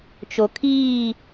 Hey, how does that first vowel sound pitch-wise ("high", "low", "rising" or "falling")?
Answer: low